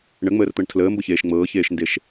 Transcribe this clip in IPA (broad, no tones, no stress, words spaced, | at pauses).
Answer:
ɳəŋ͡məːrt̪ɤɳ tʰləːmbɤçeːʃ ŋ͡mɤːçeːʃndeʃ